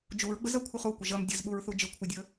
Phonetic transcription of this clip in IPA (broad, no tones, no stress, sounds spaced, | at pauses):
d͡ʒ u ɹ ɡ͡b ə z ɐ kʷʰ ɨ χ u kʷ ə ʒ ɐ m dʲ ə z ɓ u ɹ θ u d͡ʒ ɨ kʷʰ ɨ dʲ ə